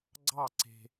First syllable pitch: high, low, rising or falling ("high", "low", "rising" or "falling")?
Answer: falling